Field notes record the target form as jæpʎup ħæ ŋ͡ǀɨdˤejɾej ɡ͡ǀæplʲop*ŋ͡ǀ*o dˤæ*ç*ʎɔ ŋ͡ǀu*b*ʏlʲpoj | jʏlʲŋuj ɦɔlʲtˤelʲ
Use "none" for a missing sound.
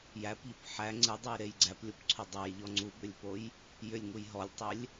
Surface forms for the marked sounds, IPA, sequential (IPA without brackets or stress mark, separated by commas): ǀʰ, j, b